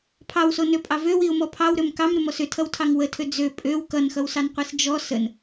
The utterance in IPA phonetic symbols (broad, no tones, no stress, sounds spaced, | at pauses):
pʰ ɑ w s o n ø pʼ ɑ v ø w i ʊ̯ m ɔ pʰ ɑ w ɾ ø m k ɑ m ɾ ʏ m ɔ s ʏ tʰ ʌ w tʰ ɑ ŋ w ə tʰ ø d͡z ø pʼ ø w k ʌ n x ʌ w s ɑ n qʷ i s d͡ʒ ɔ s ə n